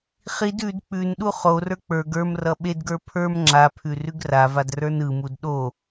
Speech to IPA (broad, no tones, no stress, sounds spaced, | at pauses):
χ i d ʉ d k͡p ʉ n ɗ u χ o r ə˞ k͡p ə˞ ɡ ə˞ m r ʌ ɓ e d ɡ ə˞ pʰ ə˞ m ŋ͡ǁ a pʰ ʉ r ʉ ɡ r a v a d r ə˞ n ɯ m u d ɗ o